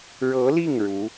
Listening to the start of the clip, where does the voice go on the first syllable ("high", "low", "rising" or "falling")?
rising